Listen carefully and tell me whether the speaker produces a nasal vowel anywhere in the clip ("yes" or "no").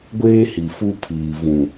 yes